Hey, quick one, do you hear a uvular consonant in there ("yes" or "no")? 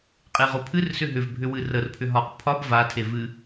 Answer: yes